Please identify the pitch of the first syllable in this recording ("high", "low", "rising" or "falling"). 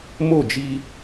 falling